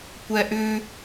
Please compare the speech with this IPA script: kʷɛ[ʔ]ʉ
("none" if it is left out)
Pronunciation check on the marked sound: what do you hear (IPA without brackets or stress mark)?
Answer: ʔ